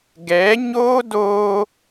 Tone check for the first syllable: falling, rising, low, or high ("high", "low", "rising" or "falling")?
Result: rising